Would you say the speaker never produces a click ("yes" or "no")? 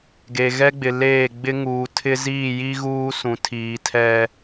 yes